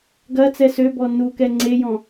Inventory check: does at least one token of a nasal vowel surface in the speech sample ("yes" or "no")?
yes